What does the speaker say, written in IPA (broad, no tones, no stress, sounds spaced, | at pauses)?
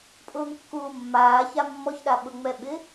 pʼ ʊː ŋ kː uː mː aː ç a mː ɔ ç ɗ a ɓ ʊ ŋ͡m ɛ ɓ ɪ